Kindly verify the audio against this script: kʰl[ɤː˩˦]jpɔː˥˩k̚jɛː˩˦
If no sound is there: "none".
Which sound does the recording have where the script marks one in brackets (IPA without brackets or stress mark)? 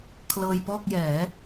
ɤː˧